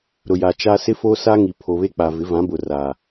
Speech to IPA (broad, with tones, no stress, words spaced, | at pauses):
ɾʊ˨ja˨ t͡ʃa˦ sɪ˦foː˦sa˦ŋi˨ pʰo˨βe˦k͡pa˨ vɪ˨˦vã˨˦bʊ˨ ra˨